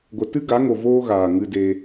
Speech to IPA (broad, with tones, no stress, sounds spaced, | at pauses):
ɡʷ ə˨ t ɨ˦ ɡ a˨˦ ŋ o˨ v oː˦ ɣ aː˨ ŋ ɨ˧ d e˧